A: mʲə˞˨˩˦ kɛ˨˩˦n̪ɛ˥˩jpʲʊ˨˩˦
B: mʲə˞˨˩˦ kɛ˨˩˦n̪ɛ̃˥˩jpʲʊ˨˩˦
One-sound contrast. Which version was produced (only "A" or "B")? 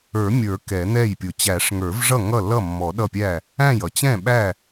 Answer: A